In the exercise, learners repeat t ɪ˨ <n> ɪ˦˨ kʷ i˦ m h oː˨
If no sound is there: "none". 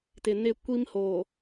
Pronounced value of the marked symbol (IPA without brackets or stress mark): n